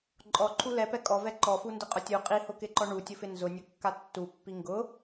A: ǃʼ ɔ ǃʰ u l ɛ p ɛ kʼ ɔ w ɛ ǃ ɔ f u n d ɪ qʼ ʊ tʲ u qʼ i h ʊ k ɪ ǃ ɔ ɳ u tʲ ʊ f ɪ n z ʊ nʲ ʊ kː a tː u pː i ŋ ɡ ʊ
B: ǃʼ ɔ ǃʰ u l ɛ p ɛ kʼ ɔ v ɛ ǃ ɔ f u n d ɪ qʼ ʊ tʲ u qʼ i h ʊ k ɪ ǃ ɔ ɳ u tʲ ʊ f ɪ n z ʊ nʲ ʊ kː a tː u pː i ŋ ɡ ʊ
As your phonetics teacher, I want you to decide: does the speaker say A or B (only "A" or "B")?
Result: B